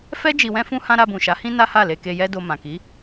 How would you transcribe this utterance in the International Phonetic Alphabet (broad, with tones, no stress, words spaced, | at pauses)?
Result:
fɛ˦ d͡ʒi˧wɛ̃˦fũ˦hã˦ ɾa˧bũ˨ʃa˨˦hĩ˦ na˦ha˦˨le˧ ke˧jɛ˦do˧ mã˨ki˨˦